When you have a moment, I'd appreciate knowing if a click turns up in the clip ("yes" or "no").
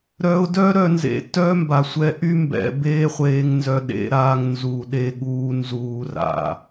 no